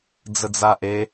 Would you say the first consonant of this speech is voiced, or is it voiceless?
voiced